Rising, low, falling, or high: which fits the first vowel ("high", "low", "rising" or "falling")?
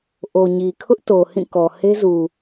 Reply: low